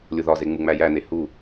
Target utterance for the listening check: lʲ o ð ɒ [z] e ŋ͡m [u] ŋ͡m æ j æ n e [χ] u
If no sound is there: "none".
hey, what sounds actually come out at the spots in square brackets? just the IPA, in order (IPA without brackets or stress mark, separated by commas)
z, u, h